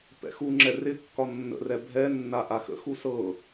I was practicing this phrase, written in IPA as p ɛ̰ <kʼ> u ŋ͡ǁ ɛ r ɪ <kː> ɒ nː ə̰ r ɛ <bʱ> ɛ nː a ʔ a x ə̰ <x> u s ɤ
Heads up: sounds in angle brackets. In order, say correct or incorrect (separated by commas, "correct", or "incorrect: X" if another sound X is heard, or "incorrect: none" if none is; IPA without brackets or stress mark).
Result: incorrect: x, correct, correct, correct